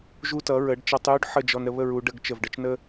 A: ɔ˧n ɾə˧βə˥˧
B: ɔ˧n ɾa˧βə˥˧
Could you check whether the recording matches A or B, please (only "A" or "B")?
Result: A